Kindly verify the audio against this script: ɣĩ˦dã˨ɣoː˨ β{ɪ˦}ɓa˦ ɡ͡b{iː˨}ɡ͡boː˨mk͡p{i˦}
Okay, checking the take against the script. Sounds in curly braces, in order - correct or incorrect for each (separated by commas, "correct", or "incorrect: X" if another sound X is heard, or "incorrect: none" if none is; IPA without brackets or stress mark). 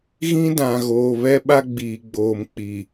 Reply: incorrect: ɛ˦, correct, incorrect: i˨